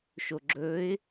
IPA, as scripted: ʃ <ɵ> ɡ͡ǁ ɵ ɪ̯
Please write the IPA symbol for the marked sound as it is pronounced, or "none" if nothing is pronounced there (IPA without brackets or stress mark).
o